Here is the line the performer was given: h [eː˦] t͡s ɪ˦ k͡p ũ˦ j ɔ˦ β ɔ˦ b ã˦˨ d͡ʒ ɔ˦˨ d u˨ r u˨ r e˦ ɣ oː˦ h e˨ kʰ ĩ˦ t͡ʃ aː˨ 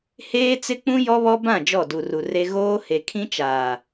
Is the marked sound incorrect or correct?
correct